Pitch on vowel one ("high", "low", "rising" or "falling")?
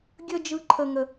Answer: high